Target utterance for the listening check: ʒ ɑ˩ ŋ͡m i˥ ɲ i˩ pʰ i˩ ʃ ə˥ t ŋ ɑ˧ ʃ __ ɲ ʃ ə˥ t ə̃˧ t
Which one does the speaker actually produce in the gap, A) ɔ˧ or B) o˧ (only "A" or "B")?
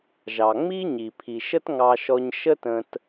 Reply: A